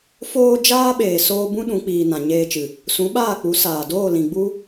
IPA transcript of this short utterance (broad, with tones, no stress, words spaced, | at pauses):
foː˧ d͡ʒaː˦ɓeː˨ soː˧bũ˦ ɗũ˨˦ k͡piː˨ nã˨ɲeː˧t͡ʃɨ˨ | sũ˨˦ɓaː˦˨k͡pu˨˦ saː˨ doː˦˨lĩ˨ɡ͡bu˦